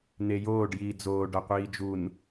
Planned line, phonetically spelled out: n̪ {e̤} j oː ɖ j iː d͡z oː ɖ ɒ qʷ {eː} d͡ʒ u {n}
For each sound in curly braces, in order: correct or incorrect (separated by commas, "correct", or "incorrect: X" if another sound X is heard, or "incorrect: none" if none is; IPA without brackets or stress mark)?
incorrect: e, incorrect: iː, correct